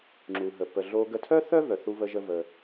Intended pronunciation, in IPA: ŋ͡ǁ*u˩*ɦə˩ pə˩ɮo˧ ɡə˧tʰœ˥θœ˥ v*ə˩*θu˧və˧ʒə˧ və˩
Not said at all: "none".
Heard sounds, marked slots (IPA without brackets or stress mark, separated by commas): u˩, œ˩